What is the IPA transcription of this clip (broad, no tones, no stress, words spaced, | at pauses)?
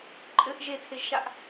ǃʼɘʔ ʒetʰeʒʃaʔ